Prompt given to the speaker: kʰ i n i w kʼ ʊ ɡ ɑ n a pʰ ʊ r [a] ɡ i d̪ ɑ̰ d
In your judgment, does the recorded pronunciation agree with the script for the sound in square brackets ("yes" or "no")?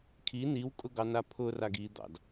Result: yes